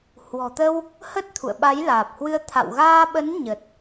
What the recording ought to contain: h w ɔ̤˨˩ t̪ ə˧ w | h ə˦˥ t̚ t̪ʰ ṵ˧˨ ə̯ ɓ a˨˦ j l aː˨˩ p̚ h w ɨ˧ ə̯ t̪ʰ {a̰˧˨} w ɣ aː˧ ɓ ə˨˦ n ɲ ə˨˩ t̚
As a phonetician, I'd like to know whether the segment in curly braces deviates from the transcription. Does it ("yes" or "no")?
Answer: no